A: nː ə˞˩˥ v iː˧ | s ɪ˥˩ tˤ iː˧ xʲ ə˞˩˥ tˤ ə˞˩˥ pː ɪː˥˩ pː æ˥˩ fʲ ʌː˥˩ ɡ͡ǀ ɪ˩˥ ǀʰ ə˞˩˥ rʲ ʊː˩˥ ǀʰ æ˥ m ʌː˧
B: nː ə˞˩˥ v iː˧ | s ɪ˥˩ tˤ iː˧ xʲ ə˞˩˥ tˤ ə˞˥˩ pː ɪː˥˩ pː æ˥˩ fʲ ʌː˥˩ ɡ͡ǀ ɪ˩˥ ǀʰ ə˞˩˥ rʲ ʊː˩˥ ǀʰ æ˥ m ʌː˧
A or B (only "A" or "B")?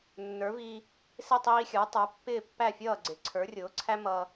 A